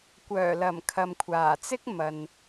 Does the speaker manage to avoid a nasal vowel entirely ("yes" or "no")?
yes